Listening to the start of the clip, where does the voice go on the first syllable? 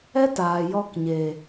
high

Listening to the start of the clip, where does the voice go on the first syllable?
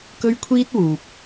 high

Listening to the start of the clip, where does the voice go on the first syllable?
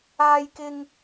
high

